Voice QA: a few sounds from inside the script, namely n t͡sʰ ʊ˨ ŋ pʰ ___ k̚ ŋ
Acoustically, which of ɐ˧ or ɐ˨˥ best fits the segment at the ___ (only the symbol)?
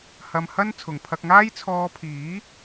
ɐ˧